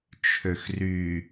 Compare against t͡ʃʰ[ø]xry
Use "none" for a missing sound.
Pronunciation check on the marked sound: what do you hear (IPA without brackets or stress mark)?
ø